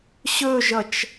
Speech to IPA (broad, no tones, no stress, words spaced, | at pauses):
ɕɵʒʌt͡ʃ